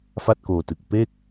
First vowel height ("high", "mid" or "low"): low